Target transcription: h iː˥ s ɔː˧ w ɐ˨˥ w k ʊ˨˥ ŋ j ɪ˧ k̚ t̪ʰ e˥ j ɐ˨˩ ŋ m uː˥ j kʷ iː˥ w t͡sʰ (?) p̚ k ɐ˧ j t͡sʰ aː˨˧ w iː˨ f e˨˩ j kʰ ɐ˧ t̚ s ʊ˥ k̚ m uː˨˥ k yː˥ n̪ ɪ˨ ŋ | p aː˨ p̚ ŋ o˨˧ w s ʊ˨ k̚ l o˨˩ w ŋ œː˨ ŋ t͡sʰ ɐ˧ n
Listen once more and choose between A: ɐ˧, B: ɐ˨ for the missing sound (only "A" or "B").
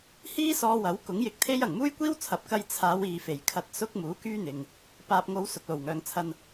B